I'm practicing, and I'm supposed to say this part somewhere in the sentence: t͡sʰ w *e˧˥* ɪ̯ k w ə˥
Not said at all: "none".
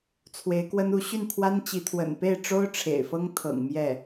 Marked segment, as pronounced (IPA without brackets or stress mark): e˧˥